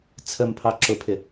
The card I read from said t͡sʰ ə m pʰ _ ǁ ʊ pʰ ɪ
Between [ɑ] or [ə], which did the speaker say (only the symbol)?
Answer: ɑ